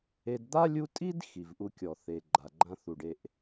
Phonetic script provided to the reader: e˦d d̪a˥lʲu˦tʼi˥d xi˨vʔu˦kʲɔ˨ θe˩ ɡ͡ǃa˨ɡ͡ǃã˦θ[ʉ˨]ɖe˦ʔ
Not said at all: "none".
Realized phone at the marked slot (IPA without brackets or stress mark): u˨